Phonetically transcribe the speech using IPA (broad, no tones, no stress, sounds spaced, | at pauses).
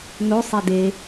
n o sˤ e d e